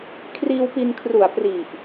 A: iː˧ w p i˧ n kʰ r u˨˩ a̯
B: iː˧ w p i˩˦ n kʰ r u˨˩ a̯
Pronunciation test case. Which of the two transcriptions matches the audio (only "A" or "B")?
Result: A